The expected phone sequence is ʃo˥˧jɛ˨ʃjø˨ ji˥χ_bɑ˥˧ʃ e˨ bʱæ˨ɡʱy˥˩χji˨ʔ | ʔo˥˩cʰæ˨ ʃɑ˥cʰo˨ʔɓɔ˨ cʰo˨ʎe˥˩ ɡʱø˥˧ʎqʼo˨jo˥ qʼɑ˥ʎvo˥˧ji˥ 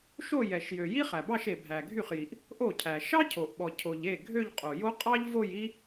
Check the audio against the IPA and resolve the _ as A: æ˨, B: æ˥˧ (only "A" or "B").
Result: A